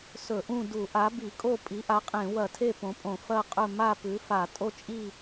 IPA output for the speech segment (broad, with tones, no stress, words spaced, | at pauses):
sɵ˧˩˧ʔũ˥˨ du˧˩˧ʔa˩˥bi˧˩˧kʼo˥˨ pʼi˩˥ʔa˩˥qʼẽ˧˩˧wɐ˧˩˧ tʰe˥˨põ˩˥pʼõ˧˩˧ fɐ˥˨qʼɵ˥˨ ma˥˨pʉ˩˥fa˧˩˧ tʼo˥˨t͡ʃʼi˥˨